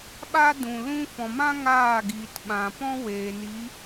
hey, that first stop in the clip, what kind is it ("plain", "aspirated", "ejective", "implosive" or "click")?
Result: implosive